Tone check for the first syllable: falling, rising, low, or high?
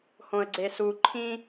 low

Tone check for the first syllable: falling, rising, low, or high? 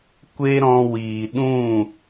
high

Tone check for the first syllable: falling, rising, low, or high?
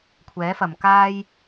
rising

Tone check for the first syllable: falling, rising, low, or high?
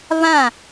falling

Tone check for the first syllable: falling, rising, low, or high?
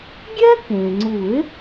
high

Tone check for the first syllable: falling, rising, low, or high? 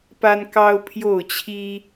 high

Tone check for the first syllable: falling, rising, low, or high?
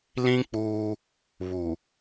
high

